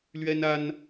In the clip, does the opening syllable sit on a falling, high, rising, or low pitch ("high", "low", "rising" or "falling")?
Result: high